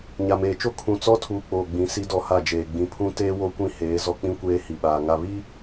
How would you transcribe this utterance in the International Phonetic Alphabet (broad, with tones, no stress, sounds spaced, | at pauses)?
ɲ a˨ m eː˨ t͡ʃ o˦ kʰ ũ˨ t͡s ɔ˦ tʰ uː˨ k͡p oː˨ ɡ͡b ĩ˨˦ s i˦ d ɔ˦ h a˦˨ d͡ʒ eː˨ ɡ͡b ĩ˨ pʰ ũ˦ t eː˦ w o˦ kʷ ĩ˦ h eː˨˦ z ɔ˦ k͡p ĩ˦ kʷ eː˦ h i˨ ɓ aː˨ ŋ a˨ β i˦